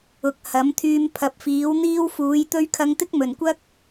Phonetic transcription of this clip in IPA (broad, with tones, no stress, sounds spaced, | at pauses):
ʊ˨˥ k̚ h ɐ˨˥ m t̪ʰ yː˧ m pʰ ɐ˨ p̚ f iː˨˥ w n̪ iː˥ w f uː˨˥ j t̪ ɵ˥ ɥ kʰ ɐ˧ ŋ t̪ ɪ˥ k̚ m ɵ˨˩ n kʷ ɐ˥ k̚